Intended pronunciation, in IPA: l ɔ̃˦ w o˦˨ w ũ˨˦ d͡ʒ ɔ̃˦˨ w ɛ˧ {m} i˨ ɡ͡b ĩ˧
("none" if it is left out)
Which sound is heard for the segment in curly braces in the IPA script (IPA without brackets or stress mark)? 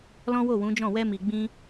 m